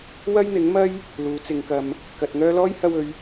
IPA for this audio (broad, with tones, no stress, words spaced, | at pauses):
wɐ˥jn̪ɪ˨˥ŋmɐ˥j | luː˨˥t͡sɪ˨˧ŋkɐ˧m | kɐ˨t̚ŋœː˥ lɔː˥jhɐ˧wɵ˨˧ɥ